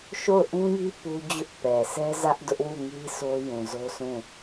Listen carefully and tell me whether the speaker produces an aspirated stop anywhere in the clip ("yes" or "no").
no